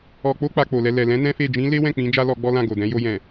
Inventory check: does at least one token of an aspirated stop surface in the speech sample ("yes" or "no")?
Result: no